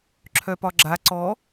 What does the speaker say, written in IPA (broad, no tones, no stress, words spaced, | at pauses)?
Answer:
ǁʰœpɒɡ͡ǁa ǀɔ